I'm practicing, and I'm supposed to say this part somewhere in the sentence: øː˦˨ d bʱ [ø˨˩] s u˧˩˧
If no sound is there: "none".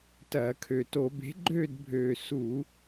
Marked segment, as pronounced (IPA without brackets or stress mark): øː˨˩